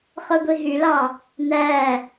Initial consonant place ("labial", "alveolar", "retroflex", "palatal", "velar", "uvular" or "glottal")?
uvular